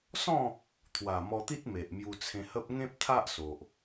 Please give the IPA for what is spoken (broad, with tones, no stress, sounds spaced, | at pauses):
s ɔ̃˥˧ | t̪ʰ w a˨˩ m ɔ˧ t̪ i˦ t̚ m e˨ ʔ m j u˧ t͡sʰ ẽ˧ h ə˦ p̚ ŋ ẽ˦ p̚ t̪ʰ a˦ ʔ s o˨ ʔ